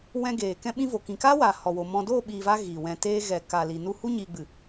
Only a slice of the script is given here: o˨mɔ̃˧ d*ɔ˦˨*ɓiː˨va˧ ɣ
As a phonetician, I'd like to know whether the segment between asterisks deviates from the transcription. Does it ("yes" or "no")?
yes